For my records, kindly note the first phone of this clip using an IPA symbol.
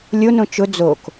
lʲ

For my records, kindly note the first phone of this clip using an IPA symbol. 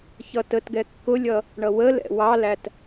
ç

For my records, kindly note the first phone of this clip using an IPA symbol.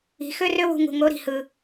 i̤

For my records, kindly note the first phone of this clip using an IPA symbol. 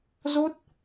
z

